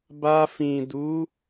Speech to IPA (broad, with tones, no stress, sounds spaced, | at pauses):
b a˧ f ĩ˨ d u˨˦